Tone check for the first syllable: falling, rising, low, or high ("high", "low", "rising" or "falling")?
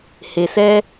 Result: low